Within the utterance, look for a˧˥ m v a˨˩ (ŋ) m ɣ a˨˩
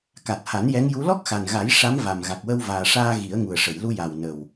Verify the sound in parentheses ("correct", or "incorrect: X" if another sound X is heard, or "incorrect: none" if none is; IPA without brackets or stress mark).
incorrect: none